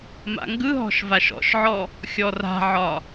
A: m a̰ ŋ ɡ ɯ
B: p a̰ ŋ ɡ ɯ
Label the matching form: A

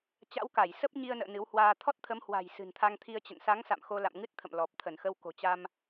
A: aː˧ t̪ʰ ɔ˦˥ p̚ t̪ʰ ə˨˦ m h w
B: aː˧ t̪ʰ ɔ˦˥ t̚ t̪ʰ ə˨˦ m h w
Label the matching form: B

